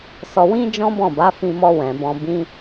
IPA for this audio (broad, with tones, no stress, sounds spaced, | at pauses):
s ɔ˧ w ĩ˦ d͡ʒ ɔ̃˦ b ɔ̃˦˨ b a˨˦ f ĩ˧ m ɔ˧ w ɛ̃˨ b ɔ̃˧ b ĩ˦